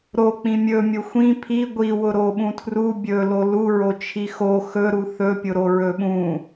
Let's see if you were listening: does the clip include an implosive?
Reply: yes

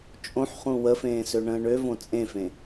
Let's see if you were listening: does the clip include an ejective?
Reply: yes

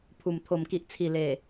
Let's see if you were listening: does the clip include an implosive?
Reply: no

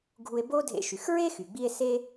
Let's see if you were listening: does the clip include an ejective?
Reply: no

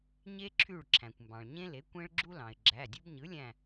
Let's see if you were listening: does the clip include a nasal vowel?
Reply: yes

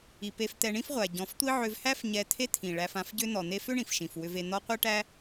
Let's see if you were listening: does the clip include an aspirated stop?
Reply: yes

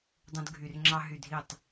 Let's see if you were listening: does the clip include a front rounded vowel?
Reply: yes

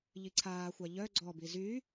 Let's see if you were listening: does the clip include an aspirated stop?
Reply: yes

